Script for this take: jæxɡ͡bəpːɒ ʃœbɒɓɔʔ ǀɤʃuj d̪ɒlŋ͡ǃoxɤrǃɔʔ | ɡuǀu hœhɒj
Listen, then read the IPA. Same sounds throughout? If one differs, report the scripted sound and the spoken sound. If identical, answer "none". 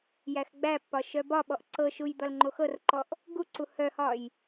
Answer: ə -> æ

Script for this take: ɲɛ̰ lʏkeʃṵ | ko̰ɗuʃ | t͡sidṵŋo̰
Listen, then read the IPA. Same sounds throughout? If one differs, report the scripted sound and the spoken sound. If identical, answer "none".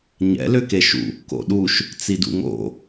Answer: none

